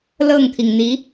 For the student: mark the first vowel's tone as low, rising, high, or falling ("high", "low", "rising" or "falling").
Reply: falling